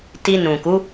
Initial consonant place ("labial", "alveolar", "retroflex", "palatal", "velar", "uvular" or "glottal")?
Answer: alveolar